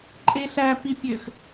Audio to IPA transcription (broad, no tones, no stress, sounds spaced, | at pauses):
ǃʼ e ɬ æ p i pʲ ø x